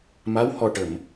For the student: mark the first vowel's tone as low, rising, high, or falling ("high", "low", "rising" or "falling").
rising